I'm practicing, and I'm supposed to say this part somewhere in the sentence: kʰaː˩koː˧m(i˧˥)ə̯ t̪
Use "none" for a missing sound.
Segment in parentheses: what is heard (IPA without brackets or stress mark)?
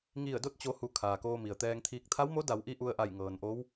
i˩